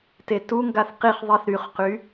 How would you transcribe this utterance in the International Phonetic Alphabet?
t e t u ŋ ɡ a θ q i χ ðˤ i θ ɾ y χ q y

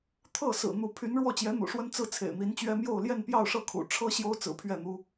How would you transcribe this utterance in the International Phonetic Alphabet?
t̪ʰ ɤ˥˩ s ɹ̩˨˩ n̪ u˧˥ pʰ y˧˥ n ɻ w ɔ˥˩ t͡ɕ j ɛ˧˥ n̪ ṵ˨˩ ʂ w ə˥ n t͡s ɹ̩˥˩ t͡sʰ ḛ˨˩ ɪ̯ n̪ i˧˥ n t͡ɕ ɥ ɛ˥ m j o˥˧ ʊ̯ l j ɛ˥˧ n p j ɑ˥˧ ʊ̯ ʂ ɤ˥˩ kʰ ṵ˨˩ ʈ͡ʂʰ ɤ˥ ɕ j o˥ ʊ̯ t͡s ɹ̩˨˩ pʰ ɥ ɛ˥˩ n̪ u˥

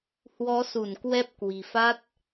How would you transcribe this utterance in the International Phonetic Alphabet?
h w ɔ˨˦ s u˧˩ n k w ɛ˦˥ p̚ k w i̤˨˩ f a˦˥ t̚

